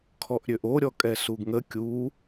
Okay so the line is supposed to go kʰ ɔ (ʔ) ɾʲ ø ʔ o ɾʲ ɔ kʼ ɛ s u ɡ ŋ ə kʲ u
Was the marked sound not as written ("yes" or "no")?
no